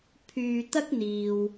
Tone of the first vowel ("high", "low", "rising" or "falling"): low